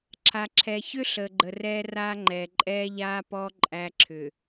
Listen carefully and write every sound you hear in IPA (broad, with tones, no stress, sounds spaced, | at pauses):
ǁʰ a˨ ǁʰ ɛ˨ ç ʏ˦ ɬ əː˨ ɡ͡ǃ ə˨ r ɛː˦ r aː˦ ŋ͡ǃ ɛː˨ ǃʼ ɛː˦ ʎ aː˦ p ɔ˦ ǃʼ æ˦ ǁʰ ʏ˨